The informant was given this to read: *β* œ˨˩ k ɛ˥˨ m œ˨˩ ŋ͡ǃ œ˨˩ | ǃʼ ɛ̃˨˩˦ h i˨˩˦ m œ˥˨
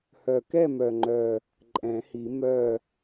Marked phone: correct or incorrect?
incorrect